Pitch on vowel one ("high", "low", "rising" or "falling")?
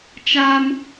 high